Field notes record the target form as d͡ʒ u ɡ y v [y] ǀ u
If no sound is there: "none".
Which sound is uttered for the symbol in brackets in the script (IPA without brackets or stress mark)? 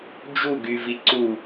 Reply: i